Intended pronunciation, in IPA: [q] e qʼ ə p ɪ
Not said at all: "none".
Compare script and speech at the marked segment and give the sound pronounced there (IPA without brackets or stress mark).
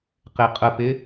q